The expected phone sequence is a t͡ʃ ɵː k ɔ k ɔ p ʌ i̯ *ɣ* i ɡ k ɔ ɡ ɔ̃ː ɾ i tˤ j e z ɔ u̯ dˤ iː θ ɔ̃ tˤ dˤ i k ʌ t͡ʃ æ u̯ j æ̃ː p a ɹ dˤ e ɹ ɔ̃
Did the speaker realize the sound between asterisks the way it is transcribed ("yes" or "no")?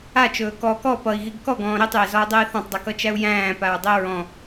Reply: yes